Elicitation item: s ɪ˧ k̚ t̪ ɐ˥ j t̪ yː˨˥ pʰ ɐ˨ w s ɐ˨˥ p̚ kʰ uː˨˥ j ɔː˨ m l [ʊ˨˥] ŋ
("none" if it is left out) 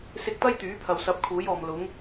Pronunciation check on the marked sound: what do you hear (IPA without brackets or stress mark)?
ʊ˨˥